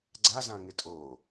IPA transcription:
ɡ͡ǀ a z ã ŋ ɪ tʼ o

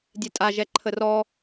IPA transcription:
dʲ ɛ tʼ a ʒ ɛ ǃʰ ə r ɔ

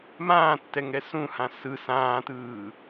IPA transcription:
m ãː tː ɛ ŋ ɛ s ũ h ã s ɯ s ãː t ɯː

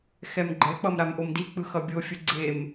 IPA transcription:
x ɛ m ɡ͡ǃ ɛ k͡p ʌ m ɾ a m ʔ o m d i k͡p ɯ x ʌ bʲ o fʲ ɯ ɡ͡ǀ e m

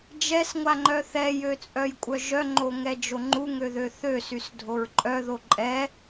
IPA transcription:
d͡ʒ ɛ s ŋʷ a ŋ͡ǃ œ θ ɛ j ø t͡sʼ œ j kʷʼ œ ʒ œ ŋ͡ǃ o ŋ ɛ d͡ʒ o ŋ͡ǃ u ŋ ø ð ø θ ø s y s dʱ o ɹ ǃʼ œ ð o ǃʼ ɛ

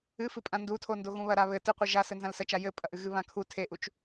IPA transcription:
ɨ f ɨ pʼ ã n d u tʰ o n d o ɣ ũ β ɐ ɾ a β ɘ t ɨ qʷ ɨ ʒ a s ɘ n z ã l s ɐ t͡ʃ a j ɘ pʼ ɐ ʔ ɨ ɣ ɨ β ã kʰ u tʰ e ʔ u t͡ʃ

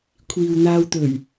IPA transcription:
kʷʰ iː˨ w n̪ aː˧ w t̪ ɵ˨˩ ɥ

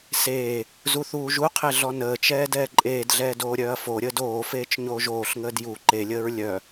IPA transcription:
s eː | z u θ uː ʒ u qʰ e ɮ ɔ n əː t͡ʃ ɛː d ɛː ǃʼ eː d ɮ ɛː d oː ɾʲ œː ɐ̯ f o ɾʲ əː d oː f eː t͡ʃ ɲ oː ʒ oː ɬ ŋ əː d j u ǃ e lʲ əː ɹ lʲ œ

